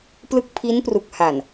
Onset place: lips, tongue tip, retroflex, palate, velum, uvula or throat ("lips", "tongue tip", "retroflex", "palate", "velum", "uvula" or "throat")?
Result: lips